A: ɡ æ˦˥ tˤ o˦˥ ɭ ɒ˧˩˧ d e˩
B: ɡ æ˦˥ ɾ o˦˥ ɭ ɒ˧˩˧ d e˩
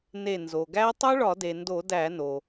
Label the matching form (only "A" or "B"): A